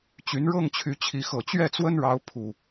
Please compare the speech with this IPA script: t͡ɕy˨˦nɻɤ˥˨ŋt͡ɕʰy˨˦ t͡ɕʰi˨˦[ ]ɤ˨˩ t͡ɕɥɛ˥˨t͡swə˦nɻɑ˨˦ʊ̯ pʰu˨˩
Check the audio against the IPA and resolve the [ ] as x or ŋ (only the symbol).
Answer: x